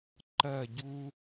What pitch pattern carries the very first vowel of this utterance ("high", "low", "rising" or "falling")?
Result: falling